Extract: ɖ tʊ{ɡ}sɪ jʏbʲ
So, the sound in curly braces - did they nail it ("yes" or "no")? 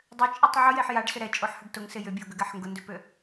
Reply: no